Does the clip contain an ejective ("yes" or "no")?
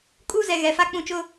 yes